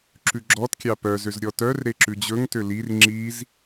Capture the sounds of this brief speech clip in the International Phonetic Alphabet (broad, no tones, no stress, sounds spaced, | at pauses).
ǁ ʉ ɡ͡ǁ ɔ t kʲ ɑ p œ z ø z ɾʲ ɔ t œ r ɾ e ǁ ʉ d͡ʑ ɵ ŋ t ø l i r ŋ͡ǁ i z